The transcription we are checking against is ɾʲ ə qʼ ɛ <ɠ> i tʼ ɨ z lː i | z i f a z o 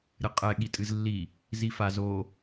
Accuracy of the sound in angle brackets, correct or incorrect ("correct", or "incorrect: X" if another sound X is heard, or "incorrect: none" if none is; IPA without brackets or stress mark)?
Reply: correct